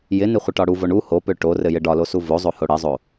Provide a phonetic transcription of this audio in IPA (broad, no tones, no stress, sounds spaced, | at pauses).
j ɪ n ɪ χʷ ɪ ʈ ɒ ɽ u v o ɳ u h o p ø ʈ o r ɘ j ɘ ɖ ɒ l o s u v o zˤ o h o ɽ ɘ zˤ o